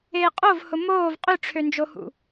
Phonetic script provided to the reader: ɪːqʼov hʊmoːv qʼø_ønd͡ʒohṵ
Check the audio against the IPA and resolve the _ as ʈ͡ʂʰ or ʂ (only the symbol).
ʈ͡ʂʰ